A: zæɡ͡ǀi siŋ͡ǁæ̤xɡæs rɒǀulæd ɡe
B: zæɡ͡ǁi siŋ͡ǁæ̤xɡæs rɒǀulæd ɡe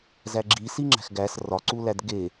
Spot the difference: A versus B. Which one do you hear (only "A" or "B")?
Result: B